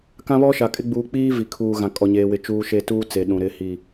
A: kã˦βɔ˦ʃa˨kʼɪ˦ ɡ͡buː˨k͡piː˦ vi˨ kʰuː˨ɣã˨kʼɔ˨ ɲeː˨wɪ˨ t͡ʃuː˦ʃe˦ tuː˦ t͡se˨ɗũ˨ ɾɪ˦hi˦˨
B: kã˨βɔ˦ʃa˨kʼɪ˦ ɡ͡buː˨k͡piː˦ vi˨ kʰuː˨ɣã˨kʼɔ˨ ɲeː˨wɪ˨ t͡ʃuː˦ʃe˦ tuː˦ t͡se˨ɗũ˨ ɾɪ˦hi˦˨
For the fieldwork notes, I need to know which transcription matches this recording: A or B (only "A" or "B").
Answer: A